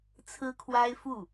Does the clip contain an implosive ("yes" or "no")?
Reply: no